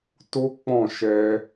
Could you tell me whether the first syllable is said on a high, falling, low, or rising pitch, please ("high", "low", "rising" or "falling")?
high